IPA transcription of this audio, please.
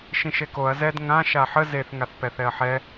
ʃ ĩ ʃ e k o ɐ̯ z ɛ d ŋ ã ʃ a ħ ə z e θ ŋ a θ p ɛ θ ɛ ɐ̯ ħ ɛ

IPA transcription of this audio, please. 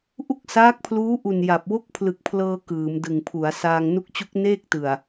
ʔ u˥˩ k̚ s aː˦˥ k̚ pʰ l uː˦˥ ʔ u˨˩ n j a˨˩ p̚ w o˥˩ k̚ pʰ l ɯ˨˩ k̚ pʰ l ɤː˧ k ɯː˩˦ m d ɯ˨˩ ŋ pʰ u˩˦ a̯ s aː˧ ŋ n u˦˥ k̚ t͡ɕ u˦˥ k̚ n eː˥˩ k̚ t ɯ˨˩ a̯

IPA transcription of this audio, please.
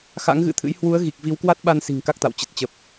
x a̰˧˥ ŋ ɣ ɨ̰˧˥ t̪ʰ ɨ̰˧˥ j h w u˨˦ ə̯ ɣ i˨˩ k̚ v i˨˦ w k w a˦˥ t̚ ɓ a˧ n s i̤˨˩ ŋ k a˦˥ k̚ t̪ a̰˧˨ w t͡ɕ ə˨˩ t̚ t͡ɕ ə˨˩ p̚

